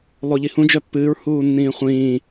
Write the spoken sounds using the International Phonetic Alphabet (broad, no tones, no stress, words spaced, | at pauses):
lˠoʎihũ d͡ʒœpːɨːɹ huːnːĩːχʷĩː